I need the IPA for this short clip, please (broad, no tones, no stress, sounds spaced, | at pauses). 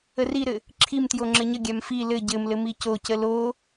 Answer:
ə r i ɾ ɘ | ǁʰ i m t j o ŋ͡ǁ ɘ ɲ ə ɡʲ a m f i l ɘ ɟ ɘ m l ɘ m i c o c ə l o